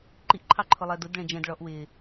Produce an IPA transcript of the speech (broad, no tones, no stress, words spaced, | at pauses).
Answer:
ǃiʔǃʰɑ ǃʰʊlˠɜdʊdɭɛ̃ d͡ʒɛ̃d ɭɔʔ wɪː